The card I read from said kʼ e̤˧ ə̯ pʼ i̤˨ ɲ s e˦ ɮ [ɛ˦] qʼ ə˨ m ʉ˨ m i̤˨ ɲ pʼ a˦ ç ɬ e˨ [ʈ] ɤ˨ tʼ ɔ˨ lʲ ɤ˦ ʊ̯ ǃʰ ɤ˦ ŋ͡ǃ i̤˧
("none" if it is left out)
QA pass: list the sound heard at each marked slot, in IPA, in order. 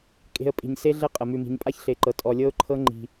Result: ɛ˦, ǃ

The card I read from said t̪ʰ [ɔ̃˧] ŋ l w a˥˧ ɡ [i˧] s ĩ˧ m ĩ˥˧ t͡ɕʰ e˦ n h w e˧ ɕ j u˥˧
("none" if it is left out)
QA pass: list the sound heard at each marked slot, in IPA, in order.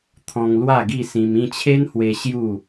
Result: ɔ̃˧, i˥˧

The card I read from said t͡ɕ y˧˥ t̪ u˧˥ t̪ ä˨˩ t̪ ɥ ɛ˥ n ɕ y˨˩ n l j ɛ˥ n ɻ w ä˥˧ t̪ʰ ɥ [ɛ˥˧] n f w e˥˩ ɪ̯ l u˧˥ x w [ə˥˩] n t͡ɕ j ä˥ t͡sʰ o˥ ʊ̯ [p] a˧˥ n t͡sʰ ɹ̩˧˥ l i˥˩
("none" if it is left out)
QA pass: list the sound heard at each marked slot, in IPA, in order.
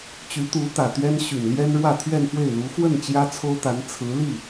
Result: ɛ˥˧, ə˥˩, t̪

